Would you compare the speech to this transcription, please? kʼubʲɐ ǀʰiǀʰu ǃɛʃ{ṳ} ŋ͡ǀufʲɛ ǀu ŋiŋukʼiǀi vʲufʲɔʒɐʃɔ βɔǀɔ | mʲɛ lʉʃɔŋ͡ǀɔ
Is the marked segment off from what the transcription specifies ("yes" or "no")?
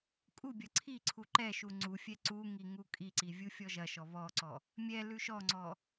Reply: yes